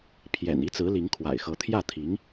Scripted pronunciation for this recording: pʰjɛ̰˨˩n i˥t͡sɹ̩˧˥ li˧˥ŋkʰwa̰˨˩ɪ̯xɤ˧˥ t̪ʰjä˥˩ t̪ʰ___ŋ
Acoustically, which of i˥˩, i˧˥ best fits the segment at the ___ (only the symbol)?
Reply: i˧˥